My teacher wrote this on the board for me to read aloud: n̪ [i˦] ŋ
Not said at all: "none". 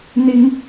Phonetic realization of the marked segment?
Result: i˦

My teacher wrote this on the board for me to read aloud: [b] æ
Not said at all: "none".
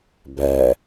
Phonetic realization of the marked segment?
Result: b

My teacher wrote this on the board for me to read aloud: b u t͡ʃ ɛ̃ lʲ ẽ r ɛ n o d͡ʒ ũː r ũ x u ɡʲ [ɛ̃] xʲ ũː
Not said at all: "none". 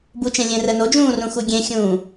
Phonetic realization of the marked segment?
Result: ẽ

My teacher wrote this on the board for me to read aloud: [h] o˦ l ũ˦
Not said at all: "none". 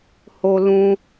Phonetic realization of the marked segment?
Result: h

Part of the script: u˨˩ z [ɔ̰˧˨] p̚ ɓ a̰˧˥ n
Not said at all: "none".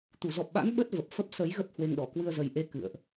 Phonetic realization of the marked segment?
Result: ɔ˨˩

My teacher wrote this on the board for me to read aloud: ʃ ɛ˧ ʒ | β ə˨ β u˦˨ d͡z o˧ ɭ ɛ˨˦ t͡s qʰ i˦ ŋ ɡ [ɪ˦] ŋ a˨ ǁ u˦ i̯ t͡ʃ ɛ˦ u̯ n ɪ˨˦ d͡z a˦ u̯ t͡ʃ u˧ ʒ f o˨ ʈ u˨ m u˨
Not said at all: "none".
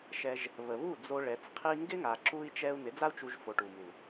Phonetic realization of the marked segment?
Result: ɪ˦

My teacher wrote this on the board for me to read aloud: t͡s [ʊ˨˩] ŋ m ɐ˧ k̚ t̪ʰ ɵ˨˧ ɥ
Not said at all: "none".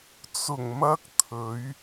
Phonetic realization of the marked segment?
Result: ʊ˨˩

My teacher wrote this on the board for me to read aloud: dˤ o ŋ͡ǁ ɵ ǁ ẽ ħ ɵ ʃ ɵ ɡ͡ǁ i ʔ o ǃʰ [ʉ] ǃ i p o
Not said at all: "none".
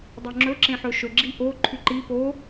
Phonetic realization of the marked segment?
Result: ʉ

